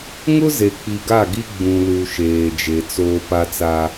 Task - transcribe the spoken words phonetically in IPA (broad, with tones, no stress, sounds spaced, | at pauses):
ŋ ʊ˦ z e˨ k͡p i˨ ɡ a˦˨ ɡ i˦ ɡ͡b ũ˨ l u˨ ʃ eː˨ d͡ʒ e˨ t͡s oː˦ p a˦ t͡s a˦